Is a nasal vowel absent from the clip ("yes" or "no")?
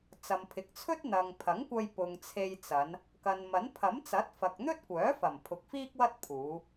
yes